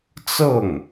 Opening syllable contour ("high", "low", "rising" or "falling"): falling